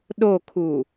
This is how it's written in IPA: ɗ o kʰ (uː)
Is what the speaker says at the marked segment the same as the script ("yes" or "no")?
yes